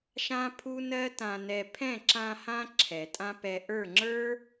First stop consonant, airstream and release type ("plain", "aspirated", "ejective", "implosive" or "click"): aspirated